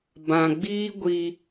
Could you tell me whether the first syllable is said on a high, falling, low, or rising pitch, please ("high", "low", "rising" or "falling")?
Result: low